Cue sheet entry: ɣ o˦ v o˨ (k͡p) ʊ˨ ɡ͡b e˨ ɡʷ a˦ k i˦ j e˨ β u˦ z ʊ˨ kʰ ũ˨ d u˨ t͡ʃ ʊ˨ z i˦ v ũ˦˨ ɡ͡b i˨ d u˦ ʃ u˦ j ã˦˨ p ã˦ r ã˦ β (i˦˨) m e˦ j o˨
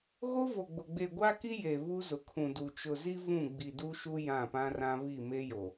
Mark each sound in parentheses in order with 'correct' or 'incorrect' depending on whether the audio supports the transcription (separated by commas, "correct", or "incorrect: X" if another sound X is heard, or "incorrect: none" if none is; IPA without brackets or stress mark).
incorrect: ɡ͡b, correct